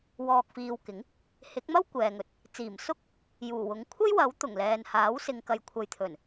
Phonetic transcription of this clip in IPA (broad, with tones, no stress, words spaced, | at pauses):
wɔː˨k̚fiː˨wkɪ˨˥ŋ | hɪ˨˥k̚mɐ˥w kʷɛː˨ŋɵ˨t̚ | t͡siː˨˩msʊ˥k̚ | juː˨˩wʊ˨˥ŋ kʷʰɐ˥jwɐ˨˥w t̪ʊ˨˩ŋlɛː˨nhaː˨˥w sɪ˨ŋkɐ˨jkʷʰɐ˨jt̪ʰɵ˨˩n